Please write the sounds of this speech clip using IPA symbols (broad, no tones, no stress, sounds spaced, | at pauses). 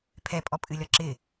pʰ ɛ pʼ ɔ pʼ ɨ lʲ ɒ ǁ ɪ